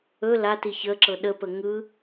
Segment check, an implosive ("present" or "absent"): present